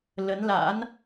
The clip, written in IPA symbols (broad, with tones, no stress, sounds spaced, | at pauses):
l ə˨˦ n l a̰˧˥ n